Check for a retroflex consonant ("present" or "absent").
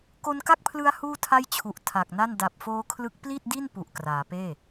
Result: absent